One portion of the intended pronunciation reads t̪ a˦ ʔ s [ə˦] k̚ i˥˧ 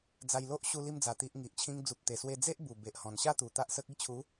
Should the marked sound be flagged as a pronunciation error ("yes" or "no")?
no